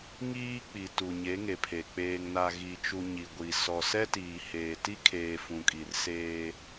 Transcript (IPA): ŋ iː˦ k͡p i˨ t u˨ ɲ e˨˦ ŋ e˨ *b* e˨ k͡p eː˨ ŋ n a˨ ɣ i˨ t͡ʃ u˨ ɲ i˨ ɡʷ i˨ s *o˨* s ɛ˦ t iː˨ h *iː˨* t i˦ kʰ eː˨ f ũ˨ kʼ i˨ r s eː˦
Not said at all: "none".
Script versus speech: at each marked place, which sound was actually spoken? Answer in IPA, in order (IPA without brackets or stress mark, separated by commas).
pʰ, ɔ˨, eː˨